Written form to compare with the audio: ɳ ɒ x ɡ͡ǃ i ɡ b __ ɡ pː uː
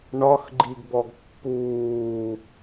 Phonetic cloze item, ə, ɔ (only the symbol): ɔ